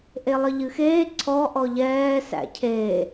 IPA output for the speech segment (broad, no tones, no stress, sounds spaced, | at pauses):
ʔ e lˠ ə ʎ ɨ x eː ǀʰ ɔ ʔ ɔ ʎ ɛː s æ̰ cʰ e